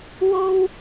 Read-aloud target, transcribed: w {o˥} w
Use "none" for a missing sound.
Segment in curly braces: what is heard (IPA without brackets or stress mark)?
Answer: o˥